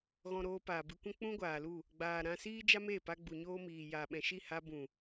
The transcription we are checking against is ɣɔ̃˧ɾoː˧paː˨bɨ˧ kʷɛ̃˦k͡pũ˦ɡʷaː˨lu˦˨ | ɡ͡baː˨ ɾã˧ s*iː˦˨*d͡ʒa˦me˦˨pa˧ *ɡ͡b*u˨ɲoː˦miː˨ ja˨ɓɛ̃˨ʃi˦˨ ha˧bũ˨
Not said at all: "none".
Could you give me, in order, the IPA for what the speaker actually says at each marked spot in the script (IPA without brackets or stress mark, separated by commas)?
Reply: iː˦, ɡ͡b